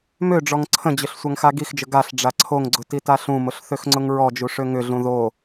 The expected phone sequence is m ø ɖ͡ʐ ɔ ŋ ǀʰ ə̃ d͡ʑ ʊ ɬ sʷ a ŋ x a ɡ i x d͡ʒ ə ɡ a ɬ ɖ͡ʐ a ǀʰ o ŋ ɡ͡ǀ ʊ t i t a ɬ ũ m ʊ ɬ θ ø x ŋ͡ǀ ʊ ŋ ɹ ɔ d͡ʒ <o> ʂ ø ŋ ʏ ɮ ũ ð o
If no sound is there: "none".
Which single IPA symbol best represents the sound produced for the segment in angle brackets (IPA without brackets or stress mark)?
u